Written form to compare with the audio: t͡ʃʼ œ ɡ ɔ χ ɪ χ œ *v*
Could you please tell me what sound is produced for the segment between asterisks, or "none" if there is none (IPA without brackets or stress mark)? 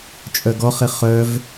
v